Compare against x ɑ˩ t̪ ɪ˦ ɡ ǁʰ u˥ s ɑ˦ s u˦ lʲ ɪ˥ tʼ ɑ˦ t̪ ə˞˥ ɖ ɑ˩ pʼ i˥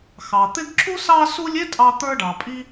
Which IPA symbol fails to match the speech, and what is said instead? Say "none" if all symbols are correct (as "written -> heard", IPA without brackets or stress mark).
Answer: none